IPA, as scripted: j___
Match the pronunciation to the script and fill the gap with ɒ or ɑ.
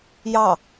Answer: ɑ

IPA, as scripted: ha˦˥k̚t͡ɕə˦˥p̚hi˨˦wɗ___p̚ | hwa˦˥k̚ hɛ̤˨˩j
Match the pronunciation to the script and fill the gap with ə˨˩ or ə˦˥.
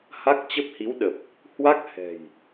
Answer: ə˨˩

